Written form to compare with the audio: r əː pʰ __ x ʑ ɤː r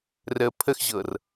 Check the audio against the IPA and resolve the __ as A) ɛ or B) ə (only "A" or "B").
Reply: B